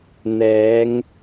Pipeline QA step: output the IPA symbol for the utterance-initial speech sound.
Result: n̪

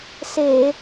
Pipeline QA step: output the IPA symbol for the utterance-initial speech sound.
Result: s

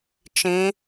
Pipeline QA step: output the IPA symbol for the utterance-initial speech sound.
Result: t͡ʃ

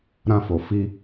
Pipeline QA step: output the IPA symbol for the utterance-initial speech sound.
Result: ɾ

